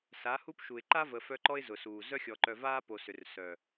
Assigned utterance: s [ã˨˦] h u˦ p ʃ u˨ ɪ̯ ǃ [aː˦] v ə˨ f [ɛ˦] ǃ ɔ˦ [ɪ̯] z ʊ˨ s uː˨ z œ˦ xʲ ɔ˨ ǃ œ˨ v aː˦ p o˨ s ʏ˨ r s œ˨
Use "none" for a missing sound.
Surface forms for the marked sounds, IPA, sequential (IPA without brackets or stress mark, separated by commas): a˨˦, a˦, œ˦, ɪ̯